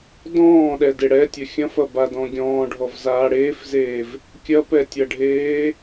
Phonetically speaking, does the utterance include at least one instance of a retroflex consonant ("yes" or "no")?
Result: yes